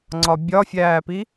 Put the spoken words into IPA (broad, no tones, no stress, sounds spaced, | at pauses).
ŋ͡ǀ ɒ bʲ ɒ fʲ æː p i